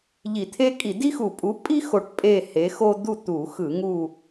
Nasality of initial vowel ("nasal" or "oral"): oral